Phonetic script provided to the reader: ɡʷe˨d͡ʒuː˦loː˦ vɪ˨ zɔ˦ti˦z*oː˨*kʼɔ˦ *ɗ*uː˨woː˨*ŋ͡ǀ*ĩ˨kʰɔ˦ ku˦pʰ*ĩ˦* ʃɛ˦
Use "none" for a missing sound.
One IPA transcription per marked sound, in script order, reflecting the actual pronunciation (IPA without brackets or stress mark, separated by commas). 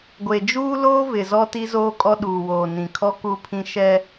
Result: oː˦, ɗ, n, ĩ˦